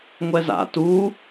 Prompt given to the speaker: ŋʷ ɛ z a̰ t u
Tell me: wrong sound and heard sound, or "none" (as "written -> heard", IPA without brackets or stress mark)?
none